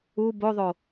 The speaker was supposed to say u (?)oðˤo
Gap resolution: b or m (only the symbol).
b